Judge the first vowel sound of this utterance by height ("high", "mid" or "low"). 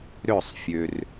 mid